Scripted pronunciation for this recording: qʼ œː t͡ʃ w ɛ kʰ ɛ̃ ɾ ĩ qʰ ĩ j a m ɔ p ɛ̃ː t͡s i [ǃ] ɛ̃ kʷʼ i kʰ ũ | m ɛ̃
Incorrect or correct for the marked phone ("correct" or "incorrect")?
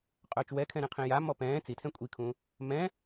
incorrect